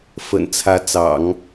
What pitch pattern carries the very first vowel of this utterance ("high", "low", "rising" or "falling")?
low